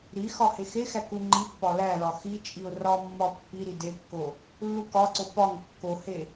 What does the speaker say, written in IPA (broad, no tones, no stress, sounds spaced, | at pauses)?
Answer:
ɾ i x ɒ h e x e x æ k u ŋ͡ǃ i pː ɒ l æ l ɒ x i t͡ʃʼ i ʊ̯ r ɒ mː ɒ pː i ɾ i d e kː o | lː u k ɒ ǀ o p ɒ ŋ kː o h e